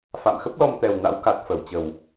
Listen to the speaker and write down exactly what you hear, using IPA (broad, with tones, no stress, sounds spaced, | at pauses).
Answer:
f a̰˧˨ m x ə˦˥ p̚ l ɔ˧ m t̪ ɛ˨˩ w n a̰˧˥ w k a˨˩ t̚ f ə˧˩ w t͡ɕ ə˨˩ w